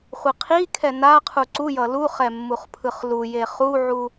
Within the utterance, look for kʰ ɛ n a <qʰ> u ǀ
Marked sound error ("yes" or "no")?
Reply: no